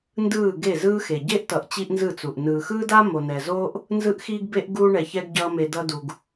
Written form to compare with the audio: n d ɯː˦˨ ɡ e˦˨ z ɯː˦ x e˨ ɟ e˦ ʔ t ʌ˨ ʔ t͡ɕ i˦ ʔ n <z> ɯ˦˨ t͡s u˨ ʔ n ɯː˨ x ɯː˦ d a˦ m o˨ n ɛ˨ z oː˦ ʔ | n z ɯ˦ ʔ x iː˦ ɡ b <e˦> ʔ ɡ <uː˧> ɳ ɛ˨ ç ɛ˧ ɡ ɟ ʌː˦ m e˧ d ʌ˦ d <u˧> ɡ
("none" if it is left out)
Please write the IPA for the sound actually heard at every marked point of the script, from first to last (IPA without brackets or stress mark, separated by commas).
z, e˦, uː˧, u˧